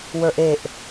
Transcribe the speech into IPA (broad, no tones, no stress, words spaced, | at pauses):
wə˞ʔeʔ